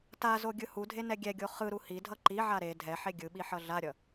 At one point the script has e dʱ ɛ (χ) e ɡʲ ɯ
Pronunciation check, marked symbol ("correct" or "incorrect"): incorrect